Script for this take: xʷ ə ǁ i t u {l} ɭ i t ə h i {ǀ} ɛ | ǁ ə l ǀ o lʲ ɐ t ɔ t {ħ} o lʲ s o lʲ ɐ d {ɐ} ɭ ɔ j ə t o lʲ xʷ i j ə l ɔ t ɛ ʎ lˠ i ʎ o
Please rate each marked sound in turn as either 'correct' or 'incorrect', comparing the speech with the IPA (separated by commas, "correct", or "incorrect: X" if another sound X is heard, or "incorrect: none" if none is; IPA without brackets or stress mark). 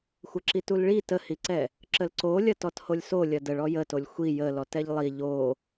correct, correct, incorrect: h, incorrect: ə